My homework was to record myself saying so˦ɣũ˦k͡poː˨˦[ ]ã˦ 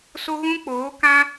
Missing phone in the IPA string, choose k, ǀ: k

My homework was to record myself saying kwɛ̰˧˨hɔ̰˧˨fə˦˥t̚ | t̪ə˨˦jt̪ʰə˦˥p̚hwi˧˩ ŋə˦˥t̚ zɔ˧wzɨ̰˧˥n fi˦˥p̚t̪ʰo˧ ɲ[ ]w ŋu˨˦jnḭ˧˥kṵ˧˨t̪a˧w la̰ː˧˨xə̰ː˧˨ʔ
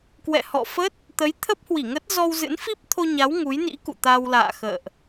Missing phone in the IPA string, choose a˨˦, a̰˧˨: a˨˦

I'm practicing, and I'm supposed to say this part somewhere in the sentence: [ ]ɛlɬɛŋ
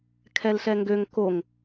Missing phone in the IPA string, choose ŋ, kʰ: kʰ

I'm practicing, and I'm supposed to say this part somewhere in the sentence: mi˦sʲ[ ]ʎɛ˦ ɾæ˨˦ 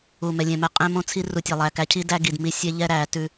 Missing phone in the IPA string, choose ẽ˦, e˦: e˦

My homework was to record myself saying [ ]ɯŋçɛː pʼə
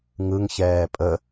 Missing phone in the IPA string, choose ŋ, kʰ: ŋ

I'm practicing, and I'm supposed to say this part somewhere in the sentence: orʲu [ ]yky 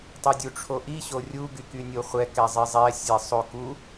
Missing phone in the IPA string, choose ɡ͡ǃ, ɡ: ɡ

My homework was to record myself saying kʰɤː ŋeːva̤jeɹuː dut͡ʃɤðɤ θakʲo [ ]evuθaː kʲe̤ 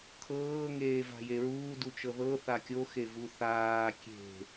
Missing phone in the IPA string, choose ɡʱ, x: x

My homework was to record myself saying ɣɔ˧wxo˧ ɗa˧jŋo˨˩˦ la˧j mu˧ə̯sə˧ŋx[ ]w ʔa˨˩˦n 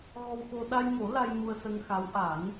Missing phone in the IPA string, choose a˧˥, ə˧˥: a˧˥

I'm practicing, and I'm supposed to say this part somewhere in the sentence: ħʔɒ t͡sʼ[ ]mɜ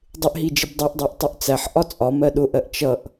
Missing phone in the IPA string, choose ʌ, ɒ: ɒ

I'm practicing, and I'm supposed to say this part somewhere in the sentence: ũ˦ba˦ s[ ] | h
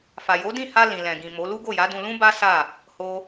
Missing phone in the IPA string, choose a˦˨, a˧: a˦˨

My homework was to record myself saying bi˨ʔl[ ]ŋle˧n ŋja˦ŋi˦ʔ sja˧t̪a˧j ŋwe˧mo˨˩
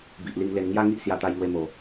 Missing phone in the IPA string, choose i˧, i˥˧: i˧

